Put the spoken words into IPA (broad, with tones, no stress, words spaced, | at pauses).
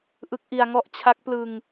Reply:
ʔɯ˦˥k̚ʔi˧a̯ŋɔ˥˩ʔ t͡ɕʰa˦˥k̚ plɯ˧ŋ